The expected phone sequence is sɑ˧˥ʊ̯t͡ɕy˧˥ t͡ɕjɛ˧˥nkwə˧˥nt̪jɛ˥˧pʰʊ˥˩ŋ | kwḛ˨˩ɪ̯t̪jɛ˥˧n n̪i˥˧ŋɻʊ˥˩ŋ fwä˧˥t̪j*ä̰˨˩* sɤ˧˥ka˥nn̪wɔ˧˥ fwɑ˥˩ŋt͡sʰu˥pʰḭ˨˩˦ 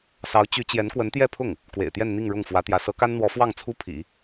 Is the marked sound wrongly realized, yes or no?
yes